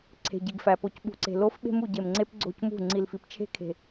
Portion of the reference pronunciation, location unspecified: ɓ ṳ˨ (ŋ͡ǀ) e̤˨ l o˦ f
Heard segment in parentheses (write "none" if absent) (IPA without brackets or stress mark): ǀ